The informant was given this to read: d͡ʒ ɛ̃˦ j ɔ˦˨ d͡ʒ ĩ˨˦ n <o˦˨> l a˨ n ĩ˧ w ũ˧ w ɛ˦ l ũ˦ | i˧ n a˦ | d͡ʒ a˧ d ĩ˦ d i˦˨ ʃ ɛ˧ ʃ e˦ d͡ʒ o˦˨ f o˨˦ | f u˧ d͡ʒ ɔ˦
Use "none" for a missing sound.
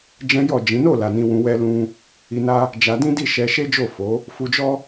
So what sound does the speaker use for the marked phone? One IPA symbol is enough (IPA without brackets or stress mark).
o˦˨